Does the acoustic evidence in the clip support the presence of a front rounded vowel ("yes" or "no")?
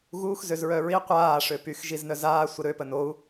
yes